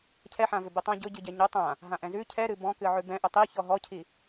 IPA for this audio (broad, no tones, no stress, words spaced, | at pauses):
cʰɛħã vʏbitˤã ɟʊɟɨɟɛ ɲʊ tˤã | ɦãʔɛ̃zʉ cʰɛɾɨ bɔ̃kɨ ʕʉbɛ̃ ʔʏtˤi çɔɦɔcʰi